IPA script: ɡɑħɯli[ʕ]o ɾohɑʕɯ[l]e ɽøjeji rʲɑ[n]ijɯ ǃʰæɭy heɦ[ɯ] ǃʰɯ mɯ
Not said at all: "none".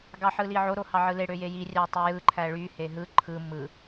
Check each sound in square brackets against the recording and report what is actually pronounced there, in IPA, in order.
ʕ, l, tˤ, ɯ

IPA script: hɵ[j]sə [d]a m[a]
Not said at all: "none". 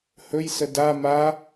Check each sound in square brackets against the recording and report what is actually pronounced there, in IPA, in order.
j, d, a

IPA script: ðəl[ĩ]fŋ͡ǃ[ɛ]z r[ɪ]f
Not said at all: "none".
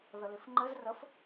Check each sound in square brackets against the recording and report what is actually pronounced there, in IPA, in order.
i, ɘ, ə

